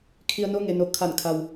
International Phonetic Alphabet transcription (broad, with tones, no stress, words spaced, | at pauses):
kʰi˧ə̯no˧˥ ŋe˩no˩ kʰa˧˩nkʰa˩w